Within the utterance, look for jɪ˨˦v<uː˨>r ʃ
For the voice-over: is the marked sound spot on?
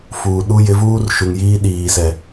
no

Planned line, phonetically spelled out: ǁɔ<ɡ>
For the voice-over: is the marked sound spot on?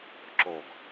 yes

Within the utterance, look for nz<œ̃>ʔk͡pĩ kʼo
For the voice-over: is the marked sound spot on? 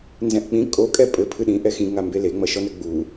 no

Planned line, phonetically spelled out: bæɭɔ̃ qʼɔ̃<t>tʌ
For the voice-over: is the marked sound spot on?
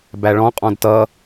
no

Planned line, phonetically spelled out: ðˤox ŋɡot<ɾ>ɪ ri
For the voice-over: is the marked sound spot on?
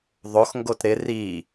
yes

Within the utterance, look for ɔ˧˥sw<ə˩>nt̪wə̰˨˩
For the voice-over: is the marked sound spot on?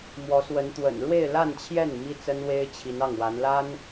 no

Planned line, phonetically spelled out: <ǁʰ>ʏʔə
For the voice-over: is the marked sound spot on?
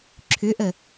yes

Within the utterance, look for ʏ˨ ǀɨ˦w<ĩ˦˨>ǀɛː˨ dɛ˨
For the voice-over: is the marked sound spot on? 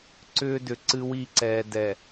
no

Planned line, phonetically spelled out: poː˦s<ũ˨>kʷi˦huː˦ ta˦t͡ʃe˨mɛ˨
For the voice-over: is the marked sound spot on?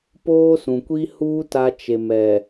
yes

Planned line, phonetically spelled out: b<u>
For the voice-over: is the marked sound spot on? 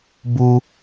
yes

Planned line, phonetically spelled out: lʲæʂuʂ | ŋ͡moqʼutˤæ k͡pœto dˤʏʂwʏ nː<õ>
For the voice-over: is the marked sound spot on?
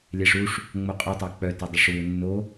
no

